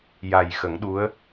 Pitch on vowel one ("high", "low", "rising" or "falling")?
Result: low